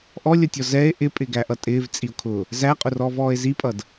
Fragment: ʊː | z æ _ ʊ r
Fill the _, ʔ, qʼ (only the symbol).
qʼ